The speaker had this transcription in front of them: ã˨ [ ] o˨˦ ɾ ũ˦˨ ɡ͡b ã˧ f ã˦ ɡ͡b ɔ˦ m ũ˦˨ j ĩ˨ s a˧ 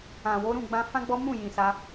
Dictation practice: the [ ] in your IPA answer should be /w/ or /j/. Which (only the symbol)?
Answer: w